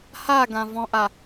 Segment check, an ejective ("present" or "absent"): absent